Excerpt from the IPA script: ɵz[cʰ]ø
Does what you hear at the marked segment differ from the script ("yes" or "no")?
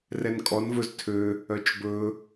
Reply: yes